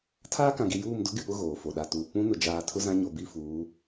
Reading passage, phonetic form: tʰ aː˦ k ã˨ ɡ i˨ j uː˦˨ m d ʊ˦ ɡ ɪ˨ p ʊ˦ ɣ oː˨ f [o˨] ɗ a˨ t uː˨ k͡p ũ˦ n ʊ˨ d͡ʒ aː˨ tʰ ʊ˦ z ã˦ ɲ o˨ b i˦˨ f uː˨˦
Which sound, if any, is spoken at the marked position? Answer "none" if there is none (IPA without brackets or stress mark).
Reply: o˨